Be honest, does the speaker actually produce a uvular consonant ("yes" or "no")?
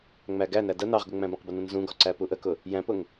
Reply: yes